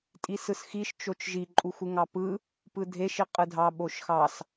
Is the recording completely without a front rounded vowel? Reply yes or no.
yes